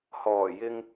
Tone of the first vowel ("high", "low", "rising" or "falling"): low